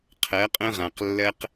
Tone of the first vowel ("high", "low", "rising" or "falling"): rising